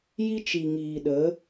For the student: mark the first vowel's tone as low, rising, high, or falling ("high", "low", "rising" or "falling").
high